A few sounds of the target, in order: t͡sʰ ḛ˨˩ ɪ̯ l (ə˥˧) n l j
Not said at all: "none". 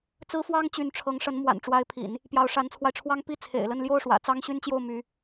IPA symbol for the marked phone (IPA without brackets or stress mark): ə˥˧